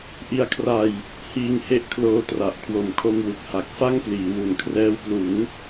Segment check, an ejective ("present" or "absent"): absent